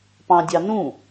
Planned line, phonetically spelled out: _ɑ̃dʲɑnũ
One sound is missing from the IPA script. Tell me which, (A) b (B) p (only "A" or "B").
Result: B